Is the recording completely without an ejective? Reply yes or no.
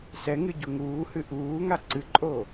no